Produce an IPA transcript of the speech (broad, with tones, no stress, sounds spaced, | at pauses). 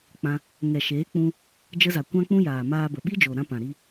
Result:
k͡p ã˧ | ŋ ɛ˨ ʃ eː˨˦ k͡p ũ˧ | d͡ʒ ə˧ z a˨ kʷ ã˦ k͡p ũ˦ j aː˨ m aː˧ b ə˨ ɓ i˦ d͡ʒ o˨ ɾ ã˧ p ã˨ ɾ i˧